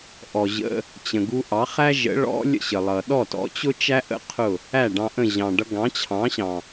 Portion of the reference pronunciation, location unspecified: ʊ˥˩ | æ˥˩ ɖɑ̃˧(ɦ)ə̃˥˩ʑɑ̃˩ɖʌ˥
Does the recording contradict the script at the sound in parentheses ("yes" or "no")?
yes